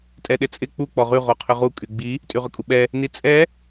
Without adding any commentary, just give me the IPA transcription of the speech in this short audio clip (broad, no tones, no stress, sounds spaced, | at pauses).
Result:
tʼ ɛ ɗ ɪ t͡sʼ ɪ k͡p u k͡p ɔ ʁ y ʁ o qʰ ʏ ʁ u kʼ y ɡ͡b i | tʼ y ʁ ʏ kʼ u ɓ ɛ | n i t͡sʼ ɛ